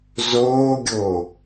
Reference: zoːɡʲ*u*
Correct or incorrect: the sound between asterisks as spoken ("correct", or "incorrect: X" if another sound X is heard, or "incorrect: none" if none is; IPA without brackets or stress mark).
incorrect: o